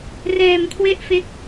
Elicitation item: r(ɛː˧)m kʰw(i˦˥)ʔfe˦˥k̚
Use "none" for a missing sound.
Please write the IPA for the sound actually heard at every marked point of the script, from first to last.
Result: ɛː˧, e˦˥

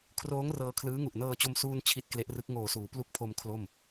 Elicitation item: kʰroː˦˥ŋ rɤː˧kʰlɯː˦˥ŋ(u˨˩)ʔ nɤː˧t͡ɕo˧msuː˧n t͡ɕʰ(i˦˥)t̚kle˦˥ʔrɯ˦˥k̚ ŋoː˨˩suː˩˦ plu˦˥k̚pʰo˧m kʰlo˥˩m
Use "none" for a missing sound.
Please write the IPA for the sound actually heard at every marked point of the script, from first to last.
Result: u˨˩, i˦˥

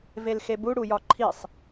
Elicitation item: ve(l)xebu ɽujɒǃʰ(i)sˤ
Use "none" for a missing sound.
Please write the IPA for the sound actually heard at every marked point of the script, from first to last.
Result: l, i

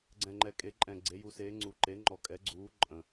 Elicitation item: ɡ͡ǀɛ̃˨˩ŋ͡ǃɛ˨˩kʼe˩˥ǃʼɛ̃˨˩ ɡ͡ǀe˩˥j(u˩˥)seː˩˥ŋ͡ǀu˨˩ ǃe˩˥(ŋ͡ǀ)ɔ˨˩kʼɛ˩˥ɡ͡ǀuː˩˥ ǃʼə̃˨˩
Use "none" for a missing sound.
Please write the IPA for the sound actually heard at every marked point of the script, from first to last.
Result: u˩˥, ŋ͡ǃ

